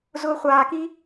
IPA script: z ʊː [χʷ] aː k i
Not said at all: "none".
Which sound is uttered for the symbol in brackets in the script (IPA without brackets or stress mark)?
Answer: χʷ